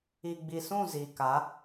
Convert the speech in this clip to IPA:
i˨ ɡ͡b i˨ s ũ˦˨ z i˨ k a˨˦

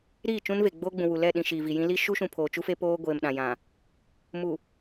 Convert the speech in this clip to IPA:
ɾ iː˦˨ t͡ʃ ũ˦ n v e˨ ɡ͡b oː˦ ɡ͡b ũ˨ w u˨ l ɛ˦˨ ɗ ĩ˨ ʃ iː˨ v i˨ j ĩ˦ l i˦ ʃ u˦ ʃ ũ˨ pʰ oː˨ t͡ʃ u˦ f e˦ p oː˦ ɡʷ eː˨ m ɗ ã˨ j ã˨ | m u˨

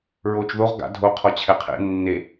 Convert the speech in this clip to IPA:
ɹ oː t͡ʃ ð o ʁ ɡ a̰ dʱ o qʰ ɔ t͡ɕʰ ɛ qʰ ḛ nː e

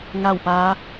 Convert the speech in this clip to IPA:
ŋ a˥˨ w p aː˧˥

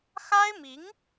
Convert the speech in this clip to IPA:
x a˥ ɪ̯ m i˧˥ ŋ

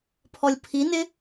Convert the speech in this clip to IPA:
pʰ ɔ lʲ pʰ i n ɪ

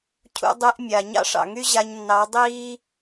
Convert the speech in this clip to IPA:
cʰ ṵ˧ dˤ y˧ ʔ mʲ a˨ ɲ ɑ̰˦ ʂ ɑ̰˨ ŋ y˦ ʑ a˧ ɲ nː ɑ˨˦ dˤ iː˦

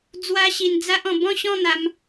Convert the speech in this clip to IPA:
d͡z w a˦ ɕ i˧ n d͡z a˦ ʔ ɔ̃˧ b ɔ̃˥˧ ɕ ɔ̃˥˧ n̪ a˧ m

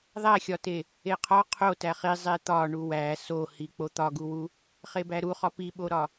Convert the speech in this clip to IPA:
ðˤ æ xʲ ɒ t e | e qʰ ɒ qʰ o t æ χ i zˤ e t̪ ɒ ɳ u w æ s o h i k͡p o t̪ ɒ ɡ u w u | χ e b æ ɾ u χ ɒ p i ɓ o ɾ ɒ

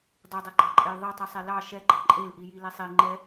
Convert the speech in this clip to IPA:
dˤ i dˤ e ɡ͡ǃ ɑ ǃʼ ɛ j ðˤ e tˤ i sˤ e l ɑ ʃ ɛ ɡ͡ǃ ɑ ǃʼ e l ʔ i j i l e sˤ i ŋ͡ǃ ɛ

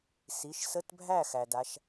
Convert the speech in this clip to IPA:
s i˩˧˩ ʃ s ə˧˥˧ t bʱ æ˥˩ x æ˩ d a˩˧˩ ʃ

